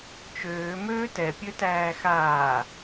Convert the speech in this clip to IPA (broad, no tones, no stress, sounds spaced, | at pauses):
t͡ʃ øː m øː t ɛ pʲ ø t æː x aː